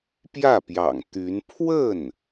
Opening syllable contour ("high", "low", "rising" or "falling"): falling